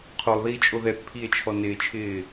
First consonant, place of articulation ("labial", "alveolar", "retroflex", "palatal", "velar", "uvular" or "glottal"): uvular